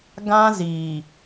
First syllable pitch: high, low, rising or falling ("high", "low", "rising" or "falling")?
high